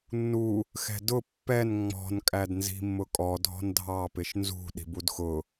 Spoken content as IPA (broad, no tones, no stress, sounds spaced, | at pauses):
nː u | x ɛ̤ d ʊ pː ɛ n ŋ͡m ɔ̤ n kʼ æ d n z i̤ mː ʊ kʼ ɔ dʱ ɔ̤ n dʱ ɑ p ɪ ʃ n z ṳ ɗ i̤ b u d x ʊ